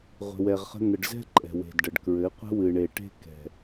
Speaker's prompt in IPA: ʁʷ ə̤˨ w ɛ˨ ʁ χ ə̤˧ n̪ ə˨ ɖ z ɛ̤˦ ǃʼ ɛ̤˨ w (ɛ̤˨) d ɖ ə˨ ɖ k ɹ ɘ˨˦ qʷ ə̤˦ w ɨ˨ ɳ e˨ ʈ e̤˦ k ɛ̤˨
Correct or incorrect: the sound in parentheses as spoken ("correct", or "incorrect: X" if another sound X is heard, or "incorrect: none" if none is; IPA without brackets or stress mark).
incorrect: e̤˨